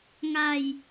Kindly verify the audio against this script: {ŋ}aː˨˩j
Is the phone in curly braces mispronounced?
no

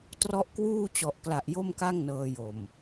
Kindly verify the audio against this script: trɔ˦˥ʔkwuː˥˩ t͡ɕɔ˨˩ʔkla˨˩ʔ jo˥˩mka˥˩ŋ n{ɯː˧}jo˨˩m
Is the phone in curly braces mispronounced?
yes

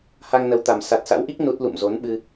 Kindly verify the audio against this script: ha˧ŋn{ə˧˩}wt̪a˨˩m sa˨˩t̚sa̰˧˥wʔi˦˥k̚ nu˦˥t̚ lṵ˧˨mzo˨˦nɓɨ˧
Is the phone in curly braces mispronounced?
yes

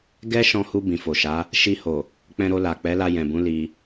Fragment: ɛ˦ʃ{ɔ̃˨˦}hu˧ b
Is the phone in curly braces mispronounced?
yes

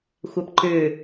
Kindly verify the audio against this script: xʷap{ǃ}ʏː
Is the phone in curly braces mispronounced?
no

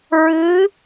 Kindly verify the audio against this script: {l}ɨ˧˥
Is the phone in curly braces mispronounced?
yes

